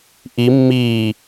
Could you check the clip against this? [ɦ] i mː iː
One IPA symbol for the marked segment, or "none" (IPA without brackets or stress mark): ʔ